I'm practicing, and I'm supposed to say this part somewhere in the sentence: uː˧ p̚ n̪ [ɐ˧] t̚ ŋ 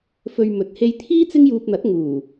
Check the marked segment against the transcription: incorrect: ɐ˨˥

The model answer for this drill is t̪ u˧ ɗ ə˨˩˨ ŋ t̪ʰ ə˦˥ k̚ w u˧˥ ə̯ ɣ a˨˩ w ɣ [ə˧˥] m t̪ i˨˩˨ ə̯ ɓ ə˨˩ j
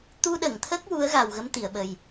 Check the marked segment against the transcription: correct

